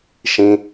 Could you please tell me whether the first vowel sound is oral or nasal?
nasal